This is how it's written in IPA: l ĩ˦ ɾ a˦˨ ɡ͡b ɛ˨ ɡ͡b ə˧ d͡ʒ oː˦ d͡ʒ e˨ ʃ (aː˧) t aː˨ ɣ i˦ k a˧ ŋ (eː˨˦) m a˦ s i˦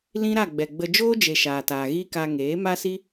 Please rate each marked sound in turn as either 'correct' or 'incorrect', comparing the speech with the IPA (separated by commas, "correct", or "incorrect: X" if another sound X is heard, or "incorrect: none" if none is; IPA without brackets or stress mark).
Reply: incorrect: aː˨, correct